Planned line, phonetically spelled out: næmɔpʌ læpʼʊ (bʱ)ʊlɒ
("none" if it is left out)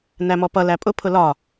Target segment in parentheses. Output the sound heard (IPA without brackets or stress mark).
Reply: pʰ